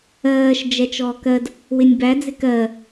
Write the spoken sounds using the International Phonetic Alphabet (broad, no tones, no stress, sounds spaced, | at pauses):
ɜː ʃ d͡ʒ ɛ t͡ʃ ɔː k ɜ d | w ɪ nʲ b æ d͡z ɪ k ɜ